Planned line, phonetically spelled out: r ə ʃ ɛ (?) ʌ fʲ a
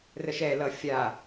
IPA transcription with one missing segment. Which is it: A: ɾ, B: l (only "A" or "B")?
B